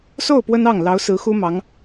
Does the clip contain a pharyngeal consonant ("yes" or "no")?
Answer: no